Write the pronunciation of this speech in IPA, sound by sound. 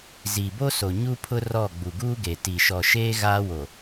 z iː˨ b o˦ s o˨ ɲ u˦ pʰ ʊ˦ r ɔ˦˨ ɡ͡b u˨ ɡ uː˦ ɡ e˨ t i˨ ʃ ɔ˨ ʃ eː˦ ɣ aː˦ w o˨

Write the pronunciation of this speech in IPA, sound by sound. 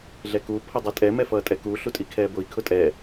ɮ ɛ k u pʰ ʊ dˤ ɛ tʼ ɛ m ɛ f ʌː tʼ ɛ k u ɬ u tʼ i kʰ ɛː b ʊ i̯ kʰ ʊ tʼ ɛ

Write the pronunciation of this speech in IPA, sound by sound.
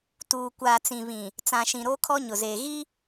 t uː˨ kʷ aː˨ t͡s ĩ˨ β ĩ˨ | t͡s ã˨ ʃ ĩ˨ ɾ oː˦ kʰ ɔ˦ ɲ ʊ˨ z eː˨ ɣ i˦

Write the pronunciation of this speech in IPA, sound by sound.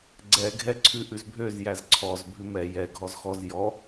ɡ͡ǀ ɛ ɡʱ ɛ ǀʰ ʉ ʔ ʉ z bʱ ø z j æ z ǀʰ ɔ z bʱ ʉ m ɛ j ɛ ɡʱ ɔ z x ɔ z j ɔ

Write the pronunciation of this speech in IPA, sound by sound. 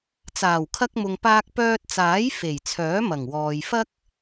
t͡s aː˨˩ w kʰ ɐ˧ k̚ m ʊ˨ ŋ p aː˧ k̚ p œː˧ t̚ t͡s aː˨˥ j f e˨˩ j t͡sʰ œː˨˥ m ɐ˨˩ ŋ w ɔː˨ j f ɐ˥ k̚

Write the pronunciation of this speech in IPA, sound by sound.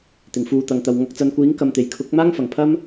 t̪ ɪ˨˩ ŋ f uː˨ t̪ ɐ˨ ŋ t̪ ɐ˨ w ŋ ɐ˨ k̚ t͡s ɐ˨ n kʷ iː˨˥ ŋ k ɐ˨ m t̪ e˨˩ j kʰ ʊ˨˥ k̚ m aː˥ ŋ f ɐ˨˩ ŋ pʰ ɐ˥ m

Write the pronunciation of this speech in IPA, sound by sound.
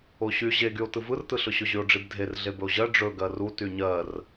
o ɕ y ʑ e ɡ y o̯ t ɯ v ɯ r t ɯ ɬ ɵ ɕ ɵ ʑ y o̯ ɖ͡ʐ i b dʱ e r ɮ e b ɵ o̯ ʑ ɜ ɖ͡ʐ ɵ ɡ ɜ r u t y ɲ ɜ r

